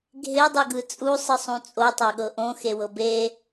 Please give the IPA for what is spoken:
ɡʱ e dˤ ɯ ɡ ɯ t͡sʼ u sˤ ɯ sˤ ũ t͡sʼ o tˤ a ɠ ɤ ʔ õ x e w ɤ b e

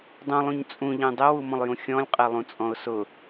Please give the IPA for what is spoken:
dˤ ũ lˠ ũ ɲ t͡sʼ ũ ʎ ẽ dˤ e w u m ɔ̃ lˠ j ũ xʲ ɔ̃ lʲ qʼ e lˠ ũ t͡sʼ ɔ̃ ʊ̯ s ʊ

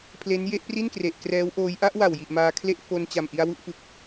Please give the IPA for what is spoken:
pʰ l e˦˥ n j e˥˩ ʔ p r i˥˩ n k r e˨˩ ʔ k r ɛː˦˥ w ʔ oː˦˥ j ʔ a˦˥ ʔ w a˨˩ w j i˨˩ ʔ m aː˧ kʰ l e˥˩ ʔ f o˧ n t͡ɕ a˨˩ m ʔ i˧ a̯ w u˦˥ ʔ f ɯ˨˩ k̚

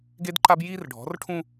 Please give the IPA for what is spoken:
ɡ e˦ d ǃ a˦ b j iː˦ r ɖʱ ɔ̤˨˦ r ʈʰ ũ˦

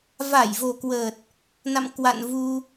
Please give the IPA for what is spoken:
v a˧˩ j v o˨˩ k w ə˨˩ t̚ | n a̰˧˨ m k w a̰˧˨ n v u˧

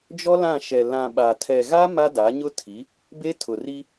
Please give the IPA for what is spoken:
d͡ʒ ɔ˦ l ã˦˨ ʃ ɛ˨ l ã˨ ɓ a˨ tʰ ɛ˨ ɣ a˦ m a˦ d a˨˦ ɲ ʊ˦ tʰ i˨˦ | b e˦ tʰ ʊ˨ r i˦

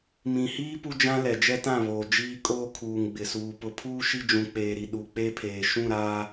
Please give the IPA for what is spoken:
m ĩ˨ h iː˦ p u˦ d͡ʒ ã˦ l ɛ˨ d͡ʒ ɛ˦ t ã˦˨ β oː˨ d͡ʒ iː˦ kʼ oː˦ kʰ uː˨ ŋ ɡ͡b ɪ˨ s uː˨ p ʊ˨ pʰ uː˦ ʃ i˦ d͡ʒ ũ˨ k͡p eː˨ ɾ i˨ ɗ u˨ k͡p e˦ pʰ eː˨ ʃ ũ˦˨ ɾ aː˦

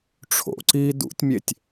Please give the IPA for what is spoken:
ʈ͡ʂʰ o̰ ǀ iː d ṵ tʲ mʲ e tʲ

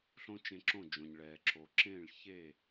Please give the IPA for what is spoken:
ɬ õ˥ t͡ʃ ẽ˧ ǁ õ˥˩ d͡ʒ õ˩ ɲ ɭ ɛː˩ ǁʰ o˩ ǁ ẽː˥˩ ɭ ç e˥˩

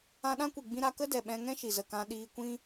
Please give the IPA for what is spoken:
ã˧ ɗ ã˦ kʷ i˨ ɡ͡b ĩ˧ ɾ a˧ k ə˦ d ɛ˨ ɓ ɛ̃˧ ŋ ɛ̃˦ ʃ i˨ z ə˨ k ã˧ ɗ iː˧ kʷ ĩ˦

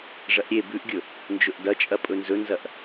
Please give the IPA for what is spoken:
ʐ ɐ ʔ ɾʲ e b ʉ ʔ ɡʲ ɵ | n d͡ʒ ɵ ʔ d ɐ t͡ʃʼ ɐ pʼ ɵ n z ɵ n z ɐ ʔ

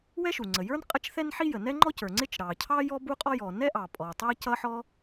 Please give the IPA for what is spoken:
w ɛ˥ ʃ u˩ ŋ͡ǀ ə˩ j ə˞˥ n qʼ ə˥ t͡ʃ θ ɛ˥ n ħ i˥ j ə˩ n ɛ˥ ŋ͡ǃ ɔ˥ c ə˞˩ ŋ͡ǀ ɪ˥ t͡ʃ ɾ ɑ˩ cʰ ɑ˥ j ɔ˥ b u˥ qʼ ɔ˥ j ɔ˩ n ɛ˥ ʔ ɑ˩ pʼ ɔ˩ tˤ æ˥ c ʌ˥ ħ ɔ˥

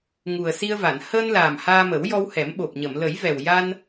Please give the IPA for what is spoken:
ŋ u˨˩ ə̯ s i˧ ə̯ v a˨˩˨ n h əː˧ n l aː˨˩ m h aː˧ m ə˨˩˦ w j ɔ˧ w h ɛ˨˩˦ m ɓ o˨˩ p̚ ɲ ə˨˩˨ m l ə˨˩˦ j v ɛ˨˩ w j a˧ n

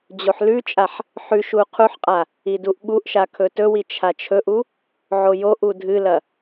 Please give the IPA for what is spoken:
d͡ʑ o ħ l ʉ t͡ʃʼ a ħ | ħ ʉ ʃ u qʰ u ħ qʼ a | i d u ʔ ɓ u ʔ ʃ a kʰ ɵ t ɵ w i t͡ʃʰ a t͡ʃʰ ɵ ʔ u | ʕ o j o ʔ u dʱ ɨ l ɐ

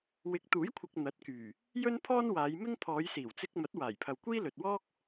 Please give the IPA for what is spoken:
w ɪ˨˥ k̚ t̪ uː˨˥ j kʷʰ ɪ˨ k̚ n̪ ɐ˨˥ t̚ k yː˨˩ | j ɵ˥ n pʰ ɔː˥ n w aː˨˧ j m ɪ˥ ŋ pʰ ɔː˨˧ j s iː˨˩ w t͡s ɪ˧ k̚ m ɐ˨˥ t̚ w aː˨˩ j pʰ ɐ˨ w kʷ iː˥ l ɵ˨ t̚ w ɔː˥ k̚

